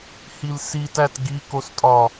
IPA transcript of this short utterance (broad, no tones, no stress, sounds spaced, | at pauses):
h i l s i t æ t ɡ i k o s tʼ ɒ